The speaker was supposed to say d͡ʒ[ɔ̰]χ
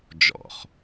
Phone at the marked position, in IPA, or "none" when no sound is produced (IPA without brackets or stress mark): ɔ̰